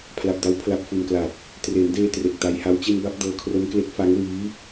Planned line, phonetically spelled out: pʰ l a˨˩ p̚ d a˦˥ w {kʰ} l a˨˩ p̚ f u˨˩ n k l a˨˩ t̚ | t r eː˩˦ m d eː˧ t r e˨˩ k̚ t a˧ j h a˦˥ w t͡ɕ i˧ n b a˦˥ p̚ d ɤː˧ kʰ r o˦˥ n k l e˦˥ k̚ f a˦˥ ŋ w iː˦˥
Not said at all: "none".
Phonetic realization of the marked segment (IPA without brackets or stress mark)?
pʰ